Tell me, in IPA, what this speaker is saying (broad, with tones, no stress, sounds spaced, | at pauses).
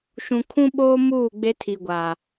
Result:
ʃ ũ˨ kʰ ũ˦ ɓ oː˦ m uː˦˨ ɡ͡b e˦ tʰ i˨ ɡʷ a˨